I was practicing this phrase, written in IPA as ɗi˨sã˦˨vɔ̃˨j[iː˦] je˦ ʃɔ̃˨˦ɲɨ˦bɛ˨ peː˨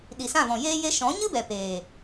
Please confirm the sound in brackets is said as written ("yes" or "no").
no